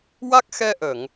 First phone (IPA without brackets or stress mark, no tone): w